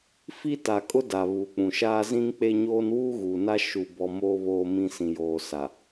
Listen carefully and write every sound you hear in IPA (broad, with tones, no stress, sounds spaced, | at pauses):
f i˦ t a˨ kʼ ʊ˦ d a˨ β uː˨ k͡p ũ˨ ʃ aː˦ z ĩ˦ ŋ k͡p e˦ ɲ oː˦ n w uː˦ ɣ uː˨ n a˦ ʃ u˦ b ɔ˦ m oː˦ β oː˦ m ĩ˦ s ĩ˨ j oː˨ s a˨